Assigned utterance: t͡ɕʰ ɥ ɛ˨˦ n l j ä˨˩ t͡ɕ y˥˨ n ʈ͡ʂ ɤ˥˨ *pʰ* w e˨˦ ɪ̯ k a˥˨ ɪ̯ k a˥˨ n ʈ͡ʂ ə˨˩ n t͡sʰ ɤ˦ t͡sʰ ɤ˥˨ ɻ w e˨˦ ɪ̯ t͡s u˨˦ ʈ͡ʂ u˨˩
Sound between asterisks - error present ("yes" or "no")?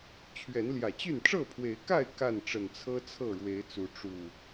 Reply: no